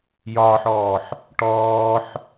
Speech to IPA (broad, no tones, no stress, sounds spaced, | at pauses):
j ɒː ħ ɔː ħ | ʈ ɔː ħ